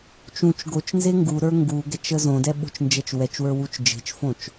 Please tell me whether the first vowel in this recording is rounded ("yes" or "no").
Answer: yes